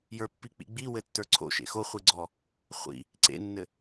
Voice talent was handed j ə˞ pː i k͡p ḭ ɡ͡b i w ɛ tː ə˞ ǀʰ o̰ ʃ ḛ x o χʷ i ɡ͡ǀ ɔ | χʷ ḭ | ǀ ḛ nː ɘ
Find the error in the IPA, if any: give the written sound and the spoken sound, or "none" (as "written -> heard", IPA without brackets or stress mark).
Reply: ɛ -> ɘ